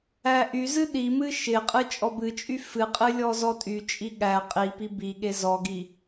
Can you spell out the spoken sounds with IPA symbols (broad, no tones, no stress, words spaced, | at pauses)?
æʔyzɨ ɗimɨ ʃɪqʼɨ t͡ʃʼɔbɨt͡ʃʼy fɨqʼɨ lʲɔzɔtʼyt͡ʃʼi ɠæ qʼipi biɠe zɔɡi